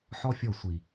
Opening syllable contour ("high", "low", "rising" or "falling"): high